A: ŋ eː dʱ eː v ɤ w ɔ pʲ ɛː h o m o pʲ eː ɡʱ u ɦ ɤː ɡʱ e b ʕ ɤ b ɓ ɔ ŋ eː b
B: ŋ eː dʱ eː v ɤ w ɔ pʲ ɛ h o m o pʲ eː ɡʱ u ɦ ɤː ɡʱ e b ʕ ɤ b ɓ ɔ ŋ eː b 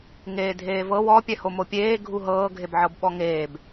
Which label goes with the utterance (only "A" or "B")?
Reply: B